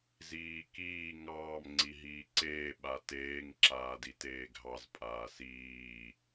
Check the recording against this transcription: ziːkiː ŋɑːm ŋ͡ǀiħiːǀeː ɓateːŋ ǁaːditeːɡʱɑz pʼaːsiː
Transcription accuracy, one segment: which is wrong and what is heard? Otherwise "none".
ħ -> ɦ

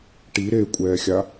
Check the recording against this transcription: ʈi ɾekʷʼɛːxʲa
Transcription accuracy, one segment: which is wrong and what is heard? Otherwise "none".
none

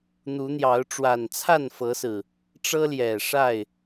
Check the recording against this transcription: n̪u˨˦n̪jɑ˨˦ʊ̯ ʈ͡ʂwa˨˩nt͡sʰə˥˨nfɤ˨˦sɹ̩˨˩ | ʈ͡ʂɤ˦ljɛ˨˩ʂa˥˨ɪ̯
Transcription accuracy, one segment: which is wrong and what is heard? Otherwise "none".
ə˥˨ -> a˥˨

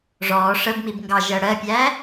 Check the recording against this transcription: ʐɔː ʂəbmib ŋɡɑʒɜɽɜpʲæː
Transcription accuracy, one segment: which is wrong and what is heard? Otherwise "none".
none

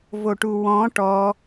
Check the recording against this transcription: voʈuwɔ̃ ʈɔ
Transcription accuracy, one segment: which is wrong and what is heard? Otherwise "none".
none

